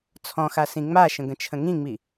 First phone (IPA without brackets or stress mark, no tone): t͡sʰ